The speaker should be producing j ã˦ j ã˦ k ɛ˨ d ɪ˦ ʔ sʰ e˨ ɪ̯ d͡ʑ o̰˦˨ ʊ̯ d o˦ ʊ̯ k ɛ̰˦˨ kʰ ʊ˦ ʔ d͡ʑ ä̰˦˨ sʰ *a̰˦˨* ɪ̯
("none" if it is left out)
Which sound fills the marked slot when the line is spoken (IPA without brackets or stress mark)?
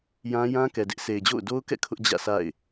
a̰˦˨